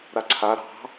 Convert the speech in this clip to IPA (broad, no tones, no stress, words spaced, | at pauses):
ɾaǀʰa ɾɑ̤